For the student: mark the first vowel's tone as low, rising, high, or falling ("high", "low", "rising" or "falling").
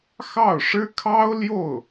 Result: falling